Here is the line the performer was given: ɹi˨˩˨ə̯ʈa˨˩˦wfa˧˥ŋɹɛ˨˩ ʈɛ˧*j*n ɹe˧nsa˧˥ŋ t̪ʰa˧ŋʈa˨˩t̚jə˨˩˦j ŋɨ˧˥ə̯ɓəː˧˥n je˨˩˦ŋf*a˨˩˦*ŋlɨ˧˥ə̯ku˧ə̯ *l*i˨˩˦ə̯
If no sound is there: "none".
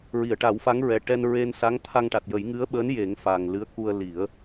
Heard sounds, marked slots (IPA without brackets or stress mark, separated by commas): none, a˨˩, l